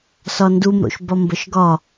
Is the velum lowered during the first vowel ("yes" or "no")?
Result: no